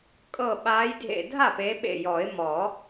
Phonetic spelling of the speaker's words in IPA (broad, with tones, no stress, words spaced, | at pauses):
kʼɤ˧˩ɓaː˨˦j dʱḛ˧˩ dʱa˥˩pe˨˦ɓḛ˧˩ jɔ˨˩˦ɪ̯mɔ˨˩˦